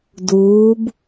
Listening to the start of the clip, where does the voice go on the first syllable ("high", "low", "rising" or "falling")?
rising